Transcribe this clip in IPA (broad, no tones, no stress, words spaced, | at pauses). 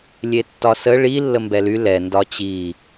lʲetːɒsə ɭi lːəmbɛly lɛ ndɒt͡ɕi